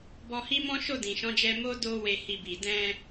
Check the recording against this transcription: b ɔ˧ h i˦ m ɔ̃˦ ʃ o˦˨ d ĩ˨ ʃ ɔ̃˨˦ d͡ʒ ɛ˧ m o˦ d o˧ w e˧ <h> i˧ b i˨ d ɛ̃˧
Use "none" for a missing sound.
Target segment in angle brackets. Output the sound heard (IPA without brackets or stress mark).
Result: h